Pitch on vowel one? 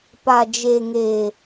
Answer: low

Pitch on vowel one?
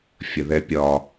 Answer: low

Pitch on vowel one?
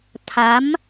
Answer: rising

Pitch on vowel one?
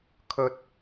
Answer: high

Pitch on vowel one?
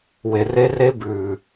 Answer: low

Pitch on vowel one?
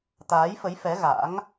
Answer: rising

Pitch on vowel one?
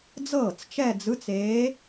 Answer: falling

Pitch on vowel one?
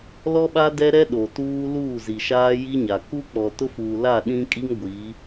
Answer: high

